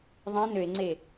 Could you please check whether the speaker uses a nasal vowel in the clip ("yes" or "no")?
yes